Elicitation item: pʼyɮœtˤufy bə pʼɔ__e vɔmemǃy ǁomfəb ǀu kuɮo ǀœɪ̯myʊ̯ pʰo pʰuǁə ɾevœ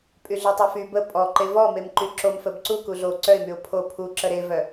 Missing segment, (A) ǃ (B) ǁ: A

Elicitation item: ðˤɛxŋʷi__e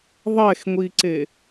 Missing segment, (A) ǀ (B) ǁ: A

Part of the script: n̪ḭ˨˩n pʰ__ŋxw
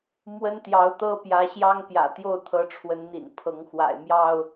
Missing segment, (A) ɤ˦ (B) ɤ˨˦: B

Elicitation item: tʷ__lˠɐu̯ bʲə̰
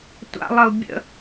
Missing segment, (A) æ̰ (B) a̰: B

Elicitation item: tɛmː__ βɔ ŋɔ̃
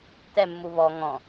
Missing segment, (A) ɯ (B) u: B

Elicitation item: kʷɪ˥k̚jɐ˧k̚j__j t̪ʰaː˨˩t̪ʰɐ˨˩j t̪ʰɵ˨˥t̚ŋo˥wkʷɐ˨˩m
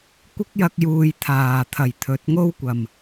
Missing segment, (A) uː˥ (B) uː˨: B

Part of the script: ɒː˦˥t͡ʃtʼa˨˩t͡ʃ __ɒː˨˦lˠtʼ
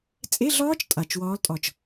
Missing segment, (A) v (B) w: B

